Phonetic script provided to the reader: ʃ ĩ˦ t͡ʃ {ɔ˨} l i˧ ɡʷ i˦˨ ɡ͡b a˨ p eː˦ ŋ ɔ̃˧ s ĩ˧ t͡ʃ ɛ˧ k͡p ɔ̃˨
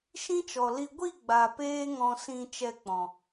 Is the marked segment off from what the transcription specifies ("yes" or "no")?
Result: no